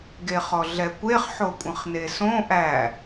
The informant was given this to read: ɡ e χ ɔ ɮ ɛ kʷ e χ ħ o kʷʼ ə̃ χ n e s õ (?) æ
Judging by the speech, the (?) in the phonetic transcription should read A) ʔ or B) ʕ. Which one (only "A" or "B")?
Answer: A